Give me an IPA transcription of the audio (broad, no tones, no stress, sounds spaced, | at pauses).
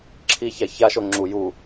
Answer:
ǁʰ i ç a ç a ʃ o ŋ͡ǁ u j u